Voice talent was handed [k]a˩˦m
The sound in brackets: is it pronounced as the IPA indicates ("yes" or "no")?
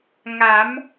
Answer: no